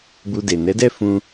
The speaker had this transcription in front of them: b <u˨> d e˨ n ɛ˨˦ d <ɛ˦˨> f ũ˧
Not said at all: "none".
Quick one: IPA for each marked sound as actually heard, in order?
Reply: u˨, ɛ˦˨

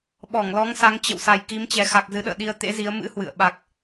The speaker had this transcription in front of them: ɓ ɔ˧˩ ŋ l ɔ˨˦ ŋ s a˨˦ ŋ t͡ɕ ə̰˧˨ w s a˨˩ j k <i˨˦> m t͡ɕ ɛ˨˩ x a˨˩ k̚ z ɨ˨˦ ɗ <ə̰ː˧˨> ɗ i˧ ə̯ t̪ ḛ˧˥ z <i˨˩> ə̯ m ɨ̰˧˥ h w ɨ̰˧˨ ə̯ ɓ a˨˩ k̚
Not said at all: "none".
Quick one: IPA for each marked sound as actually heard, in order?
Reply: i˨˦, ə̰ː˧˨, i˨˦

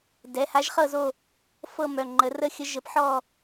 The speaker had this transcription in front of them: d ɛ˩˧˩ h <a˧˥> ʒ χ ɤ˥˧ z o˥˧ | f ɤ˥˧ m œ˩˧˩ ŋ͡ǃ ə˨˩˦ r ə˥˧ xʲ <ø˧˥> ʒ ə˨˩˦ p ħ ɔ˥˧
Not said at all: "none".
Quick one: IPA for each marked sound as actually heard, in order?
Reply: a˧˥, ə˧˥

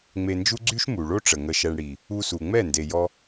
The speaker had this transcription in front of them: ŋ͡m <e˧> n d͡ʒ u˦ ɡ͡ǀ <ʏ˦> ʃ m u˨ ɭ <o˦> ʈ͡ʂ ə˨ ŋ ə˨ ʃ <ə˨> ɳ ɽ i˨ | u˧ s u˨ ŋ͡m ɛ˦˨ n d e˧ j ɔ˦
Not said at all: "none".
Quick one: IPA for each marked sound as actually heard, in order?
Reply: e˧, y˦, o˦, ɛ˨

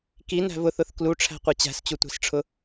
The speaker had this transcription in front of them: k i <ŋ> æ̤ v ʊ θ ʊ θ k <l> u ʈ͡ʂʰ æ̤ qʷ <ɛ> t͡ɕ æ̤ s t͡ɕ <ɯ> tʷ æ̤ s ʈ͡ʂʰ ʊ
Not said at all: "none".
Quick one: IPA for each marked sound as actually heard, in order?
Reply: n, l, ɛ, u

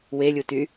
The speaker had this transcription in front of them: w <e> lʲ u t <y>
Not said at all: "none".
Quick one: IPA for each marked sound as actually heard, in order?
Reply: e, y

